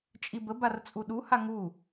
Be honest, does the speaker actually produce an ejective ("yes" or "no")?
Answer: yes